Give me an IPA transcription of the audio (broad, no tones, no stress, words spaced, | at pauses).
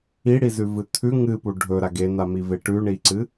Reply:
iɽizʉvɨ t̪ʰʉ ŋɨpu ɖʱɵɾaɡ en̪amive ʈʉɳiǀɨ